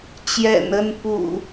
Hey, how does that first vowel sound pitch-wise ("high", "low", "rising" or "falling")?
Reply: low